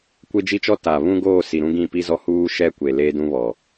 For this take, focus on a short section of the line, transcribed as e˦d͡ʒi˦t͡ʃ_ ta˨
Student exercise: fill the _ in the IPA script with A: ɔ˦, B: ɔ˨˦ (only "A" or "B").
A